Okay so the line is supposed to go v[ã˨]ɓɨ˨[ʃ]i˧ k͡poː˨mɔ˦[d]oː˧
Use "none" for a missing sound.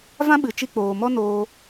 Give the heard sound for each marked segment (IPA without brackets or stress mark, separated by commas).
ã˦, t͡ʃ, n